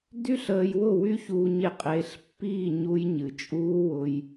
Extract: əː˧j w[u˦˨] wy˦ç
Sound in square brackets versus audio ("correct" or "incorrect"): incorrect